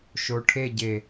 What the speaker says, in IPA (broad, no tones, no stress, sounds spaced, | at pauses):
ʃ o ʈʰ e ɟ e